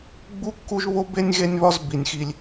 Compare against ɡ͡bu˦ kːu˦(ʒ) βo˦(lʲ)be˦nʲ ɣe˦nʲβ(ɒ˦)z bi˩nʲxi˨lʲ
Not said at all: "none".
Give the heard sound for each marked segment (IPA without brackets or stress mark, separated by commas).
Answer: ʒ, none, ɒ˦